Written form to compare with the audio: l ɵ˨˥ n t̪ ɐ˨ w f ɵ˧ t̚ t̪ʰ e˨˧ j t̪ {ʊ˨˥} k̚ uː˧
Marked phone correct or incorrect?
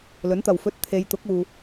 correct